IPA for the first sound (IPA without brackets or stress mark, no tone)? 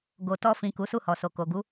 ɡ